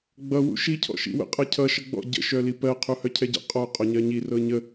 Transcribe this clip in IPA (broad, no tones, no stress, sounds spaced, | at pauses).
ɡ͡b ʌ w ṵ ʃ i cʰ ɔ̰ ʃ ḭ w ə̰ qʼ ʌ cʰ ʌ ʃ ʌ ɡ͡b ɔ̰ ɟ ə̰ ʃ œ l i p ɜ qʰ u h œ cʰ ɛ ɟ ə̰ qʼ ɔ qʼ ɔ ɲ ɜ ɲ i r ɤ ɲ ə